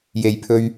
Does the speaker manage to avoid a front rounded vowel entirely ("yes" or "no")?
yes